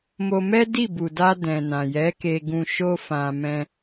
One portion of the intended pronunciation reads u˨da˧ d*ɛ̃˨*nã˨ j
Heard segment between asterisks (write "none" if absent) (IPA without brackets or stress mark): ɛ̃˨